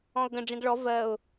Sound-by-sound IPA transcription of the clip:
ɔ̃ ʊ̯ ɡ ə̃ ɖ͡ʐ ĩ ɡ ɭ ɔ v ɜ ʊ̯

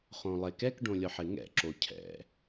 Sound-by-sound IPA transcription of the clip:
χ õ lˠ e k ɛ k ɖ õ lʲ ɔ ħ ɪ ŋ ɛ̰ ǁ o cʰ ɛ̰

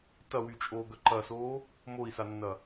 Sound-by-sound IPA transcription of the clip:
t ɐ w y t͡ʃʼ oː ɡ œ ǃ ɐ s oː | m o i̯ s a nː ɐ

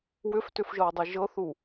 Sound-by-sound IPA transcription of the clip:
w ʏ f t ʏ f ʒ ɤ w dˤ i ʒ ɤ θ u

